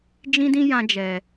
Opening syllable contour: high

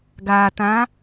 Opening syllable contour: low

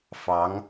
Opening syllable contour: rising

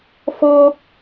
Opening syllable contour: high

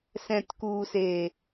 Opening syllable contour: low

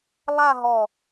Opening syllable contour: falling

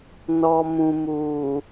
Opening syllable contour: low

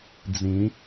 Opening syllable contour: rising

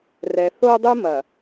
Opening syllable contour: low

